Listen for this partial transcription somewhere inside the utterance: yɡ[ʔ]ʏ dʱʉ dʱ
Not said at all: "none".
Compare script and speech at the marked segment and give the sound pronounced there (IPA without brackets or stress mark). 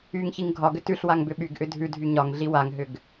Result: ʔ